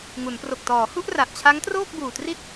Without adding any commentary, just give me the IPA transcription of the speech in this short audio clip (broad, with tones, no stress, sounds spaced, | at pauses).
ŋ u˩˦ n p r o˨˩ k̚ t ɔː˩˦ h u˥˩ ʔ r a˨˩ ʔ t͡ɕʰ a˦˥ ŋ t r oː˥˩ k̚ b uː˨˩ t r i˥˩ t̚